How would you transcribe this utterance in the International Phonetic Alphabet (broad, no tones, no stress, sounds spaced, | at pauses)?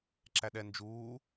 ǁ æ ɗ ɛ n d͡ʒ uː